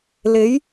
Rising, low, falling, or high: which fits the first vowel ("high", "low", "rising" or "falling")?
rising